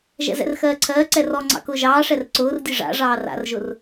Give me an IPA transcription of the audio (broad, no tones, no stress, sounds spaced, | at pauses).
ʒ ɛ̰ z ɛ̰ r x ɜː ǀʰ ɜː ǀ ɛ r ɔ ŋ͡ǀ ɑ̰ k ʊː ʒ ɑː ʂ ɛ r ǀ ʊː r dʲ ɨ ʐ a̰ ʐ ɑː r a̰ r ʒ ʊ r